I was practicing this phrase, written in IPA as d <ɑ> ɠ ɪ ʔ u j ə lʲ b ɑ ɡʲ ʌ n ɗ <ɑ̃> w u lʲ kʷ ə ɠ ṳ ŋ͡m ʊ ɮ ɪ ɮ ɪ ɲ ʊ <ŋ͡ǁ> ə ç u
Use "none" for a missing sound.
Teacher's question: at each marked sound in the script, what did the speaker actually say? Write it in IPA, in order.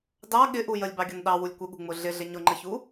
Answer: ɑ, ɑ, ŋ͡ǃ

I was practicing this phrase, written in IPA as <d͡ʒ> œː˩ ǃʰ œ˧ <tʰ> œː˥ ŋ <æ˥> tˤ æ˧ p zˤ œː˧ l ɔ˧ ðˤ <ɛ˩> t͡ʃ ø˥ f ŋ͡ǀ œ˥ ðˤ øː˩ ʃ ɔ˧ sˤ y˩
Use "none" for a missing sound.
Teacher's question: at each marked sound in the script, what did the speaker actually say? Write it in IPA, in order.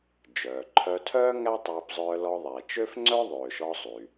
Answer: d͡ʒ, tʰ, æ˥, ɛ˩

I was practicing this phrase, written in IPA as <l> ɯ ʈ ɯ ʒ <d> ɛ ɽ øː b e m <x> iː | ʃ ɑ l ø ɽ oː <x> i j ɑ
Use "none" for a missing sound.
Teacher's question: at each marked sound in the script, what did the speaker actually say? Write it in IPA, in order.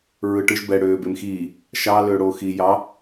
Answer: ɹ, b, x, x

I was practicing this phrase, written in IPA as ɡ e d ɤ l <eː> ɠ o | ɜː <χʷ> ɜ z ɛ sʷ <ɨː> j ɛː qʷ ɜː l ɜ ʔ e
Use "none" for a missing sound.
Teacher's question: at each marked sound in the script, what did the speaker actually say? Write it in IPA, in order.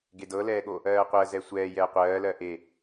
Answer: ɛː, qʷ, ɛː

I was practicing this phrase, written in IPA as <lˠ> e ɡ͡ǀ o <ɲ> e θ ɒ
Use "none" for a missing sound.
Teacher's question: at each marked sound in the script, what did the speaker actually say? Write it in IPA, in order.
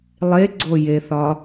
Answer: lˠ, j

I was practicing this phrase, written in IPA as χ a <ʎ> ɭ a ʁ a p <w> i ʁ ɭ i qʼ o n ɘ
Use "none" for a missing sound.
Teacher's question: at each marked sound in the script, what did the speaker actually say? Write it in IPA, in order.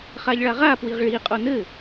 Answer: ʎ, w

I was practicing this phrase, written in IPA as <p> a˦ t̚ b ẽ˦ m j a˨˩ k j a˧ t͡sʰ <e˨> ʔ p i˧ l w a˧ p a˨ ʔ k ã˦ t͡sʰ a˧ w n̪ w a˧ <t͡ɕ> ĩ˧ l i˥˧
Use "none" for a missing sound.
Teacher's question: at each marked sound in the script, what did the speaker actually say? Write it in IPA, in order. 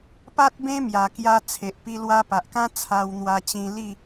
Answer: p, e˨, t͡ɕ

